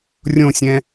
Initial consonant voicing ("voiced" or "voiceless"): voiced